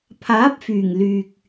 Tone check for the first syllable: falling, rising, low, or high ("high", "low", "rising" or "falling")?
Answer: rising